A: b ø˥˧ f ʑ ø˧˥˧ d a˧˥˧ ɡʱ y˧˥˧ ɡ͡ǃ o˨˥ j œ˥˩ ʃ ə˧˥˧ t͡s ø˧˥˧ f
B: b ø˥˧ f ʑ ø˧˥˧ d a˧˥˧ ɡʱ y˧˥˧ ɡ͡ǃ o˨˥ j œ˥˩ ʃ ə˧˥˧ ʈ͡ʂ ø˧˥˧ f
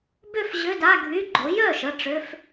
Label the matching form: B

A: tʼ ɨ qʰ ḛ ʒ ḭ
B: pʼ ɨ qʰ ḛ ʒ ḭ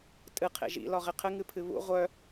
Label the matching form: A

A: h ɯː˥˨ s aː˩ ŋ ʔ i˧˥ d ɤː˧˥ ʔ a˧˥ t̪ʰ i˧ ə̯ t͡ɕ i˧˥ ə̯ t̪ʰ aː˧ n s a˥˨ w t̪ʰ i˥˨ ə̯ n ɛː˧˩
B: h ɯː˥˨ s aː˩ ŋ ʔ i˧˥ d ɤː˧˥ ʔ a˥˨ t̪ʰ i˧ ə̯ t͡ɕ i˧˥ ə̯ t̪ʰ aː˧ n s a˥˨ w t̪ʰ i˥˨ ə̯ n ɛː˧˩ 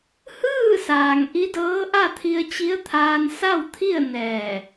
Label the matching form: B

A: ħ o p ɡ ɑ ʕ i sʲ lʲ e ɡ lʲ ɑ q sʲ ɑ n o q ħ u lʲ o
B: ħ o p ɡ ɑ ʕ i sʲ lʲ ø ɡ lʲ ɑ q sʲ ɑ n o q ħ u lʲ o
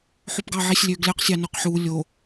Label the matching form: B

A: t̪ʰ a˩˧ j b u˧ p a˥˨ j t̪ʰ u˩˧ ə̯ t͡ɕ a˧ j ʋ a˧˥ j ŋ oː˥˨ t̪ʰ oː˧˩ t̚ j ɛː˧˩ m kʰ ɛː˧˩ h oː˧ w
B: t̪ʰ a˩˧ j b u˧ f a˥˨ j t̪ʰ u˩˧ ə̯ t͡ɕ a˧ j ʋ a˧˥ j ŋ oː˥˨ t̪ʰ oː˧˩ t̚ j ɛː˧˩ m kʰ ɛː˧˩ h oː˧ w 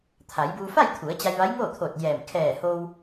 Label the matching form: B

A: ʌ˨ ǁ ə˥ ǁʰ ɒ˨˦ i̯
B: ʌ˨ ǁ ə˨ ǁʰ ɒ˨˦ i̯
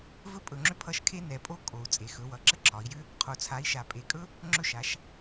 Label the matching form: A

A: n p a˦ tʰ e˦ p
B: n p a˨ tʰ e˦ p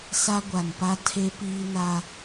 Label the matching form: A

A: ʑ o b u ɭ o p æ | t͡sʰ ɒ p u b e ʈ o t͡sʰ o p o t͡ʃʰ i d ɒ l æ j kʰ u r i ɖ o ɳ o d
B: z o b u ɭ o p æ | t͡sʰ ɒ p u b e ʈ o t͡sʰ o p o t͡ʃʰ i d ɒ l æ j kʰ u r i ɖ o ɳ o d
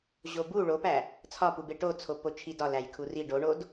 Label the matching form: A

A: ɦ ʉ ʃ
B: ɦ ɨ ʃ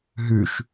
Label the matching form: A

